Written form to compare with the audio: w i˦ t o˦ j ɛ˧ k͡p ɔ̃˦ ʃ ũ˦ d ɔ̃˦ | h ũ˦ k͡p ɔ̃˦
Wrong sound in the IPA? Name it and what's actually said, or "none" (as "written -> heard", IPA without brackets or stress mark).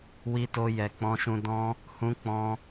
none